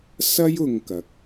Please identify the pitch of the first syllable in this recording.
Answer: high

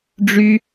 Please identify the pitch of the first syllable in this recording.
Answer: high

